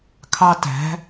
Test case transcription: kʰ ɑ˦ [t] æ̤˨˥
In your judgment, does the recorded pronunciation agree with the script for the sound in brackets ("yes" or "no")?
yes